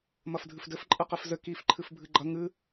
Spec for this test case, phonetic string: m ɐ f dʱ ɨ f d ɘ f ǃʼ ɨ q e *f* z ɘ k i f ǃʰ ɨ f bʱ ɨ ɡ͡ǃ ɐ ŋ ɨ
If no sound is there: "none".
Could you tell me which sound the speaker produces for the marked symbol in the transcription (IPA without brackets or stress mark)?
f